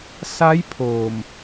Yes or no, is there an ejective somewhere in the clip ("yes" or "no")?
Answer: no